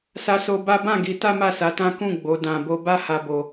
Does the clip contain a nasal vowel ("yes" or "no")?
yes